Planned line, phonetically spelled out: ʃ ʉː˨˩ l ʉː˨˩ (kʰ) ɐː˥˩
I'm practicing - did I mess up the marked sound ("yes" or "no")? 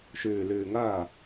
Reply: yes